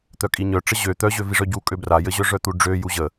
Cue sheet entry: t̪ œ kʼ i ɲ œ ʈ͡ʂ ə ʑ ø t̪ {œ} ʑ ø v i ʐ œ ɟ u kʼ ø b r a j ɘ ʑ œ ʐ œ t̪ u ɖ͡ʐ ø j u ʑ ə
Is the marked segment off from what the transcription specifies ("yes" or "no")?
no